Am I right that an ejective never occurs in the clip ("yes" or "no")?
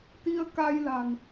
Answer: yes